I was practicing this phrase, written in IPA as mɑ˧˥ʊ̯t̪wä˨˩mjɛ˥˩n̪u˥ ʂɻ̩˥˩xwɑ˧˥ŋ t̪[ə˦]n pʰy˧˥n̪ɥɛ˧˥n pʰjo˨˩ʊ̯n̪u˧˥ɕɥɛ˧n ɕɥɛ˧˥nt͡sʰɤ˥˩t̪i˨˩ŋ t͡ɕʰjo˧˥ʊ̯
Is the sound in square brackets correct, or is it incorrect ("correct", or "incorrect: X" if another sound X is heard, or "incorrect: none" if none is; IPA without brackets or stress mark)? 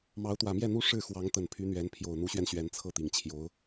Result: incorrect: ə˨˩